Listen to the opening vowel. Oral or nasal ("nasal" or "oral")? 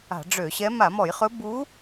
oral